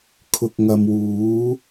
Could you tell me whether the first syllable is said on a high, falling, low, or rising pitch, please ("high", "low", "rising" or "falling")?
low